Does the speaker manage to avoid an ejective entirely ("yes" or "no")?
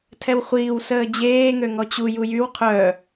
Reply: yes